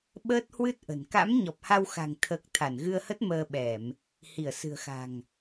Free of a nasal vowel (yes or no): yes